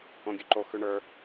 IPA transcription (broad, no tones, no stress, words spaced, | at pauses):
õɡʲʉǃo xʉɳə˞